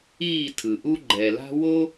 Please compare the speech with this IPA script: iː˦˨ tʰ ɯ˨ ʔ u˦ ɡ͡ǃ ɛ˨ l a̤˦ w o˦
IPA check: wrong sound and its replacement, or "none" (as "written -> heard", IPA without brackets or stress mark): none